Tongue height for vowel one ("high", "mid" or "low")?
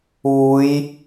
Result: high